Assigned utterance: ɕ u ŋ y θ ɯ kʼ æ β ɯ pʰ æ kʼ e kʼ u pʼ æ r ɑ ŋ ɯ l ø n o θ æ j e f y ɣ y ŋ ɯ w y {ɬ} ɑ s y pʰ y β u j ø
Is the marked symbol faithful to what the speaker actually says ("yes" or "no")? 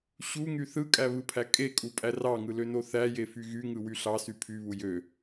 yes